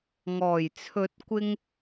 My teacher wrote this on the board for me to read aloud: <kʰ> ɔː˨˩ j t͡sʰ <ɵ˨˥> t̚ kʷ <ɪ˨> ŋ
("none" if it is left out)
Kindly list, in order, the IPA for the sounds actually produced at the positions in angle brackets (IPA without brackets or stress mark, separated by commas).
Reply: ŋ, ɵ˨˥, ɪ˥